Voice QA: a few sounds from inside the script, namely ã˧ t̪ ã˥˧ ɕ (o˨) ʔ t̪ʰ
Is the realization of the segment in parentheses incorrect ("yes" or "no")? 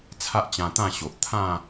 no